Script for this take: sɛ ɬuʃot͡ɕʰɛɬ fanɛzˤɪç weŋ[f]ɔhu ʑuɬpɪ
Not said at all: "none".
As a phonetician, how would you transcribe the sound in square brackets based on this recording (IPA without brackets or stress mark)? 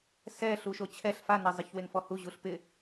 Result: f